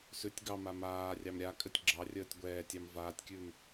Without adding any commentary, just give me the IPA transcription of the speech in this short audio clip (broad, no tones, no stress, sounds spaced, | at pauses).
s ʉ tʲ ɡ ɑ m a m aː rʲ ɑ m ɾʲ a kʼ ɘ tʲ ɡ͡ǁ ɑ rʲ əː tʲ ɡʷ ɛː tʲ ɑ m v aː tʲ kʲ ʉː m